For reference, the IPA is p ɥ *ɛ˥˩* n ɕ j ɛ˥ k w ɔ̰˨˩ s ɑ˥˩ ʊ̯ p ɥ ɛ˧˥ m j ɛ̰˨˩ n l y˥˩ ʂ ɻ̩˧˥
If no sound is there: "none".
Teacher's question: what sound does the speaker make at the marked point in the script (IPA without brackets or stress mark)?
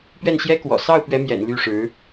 ɛ˥˩